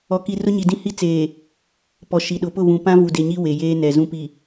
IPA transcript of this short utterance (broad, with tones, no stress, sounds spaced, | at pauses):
ɔ˨ k i˨ r ʊ˦ ɲ i˨ d ĩ˦ h i˦ t͡s eː˨ | p ɔ˨ ʃ i˨ ɗ ʊ˨ p ʊ˦˨ β ũ˨ p ã˦ v u˨ d e˨ ɲ i˦ w e˨ j eː˦ n ɛ˨ z ũ˦ p i˨